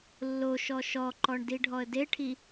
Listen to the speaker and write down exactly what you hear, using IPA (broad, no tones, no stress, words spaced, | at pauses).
lːoʃɔ ʃɔǃɔɳ diɖʱɔə̯deʈʰi